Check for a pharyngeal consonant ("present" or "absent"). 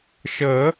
absent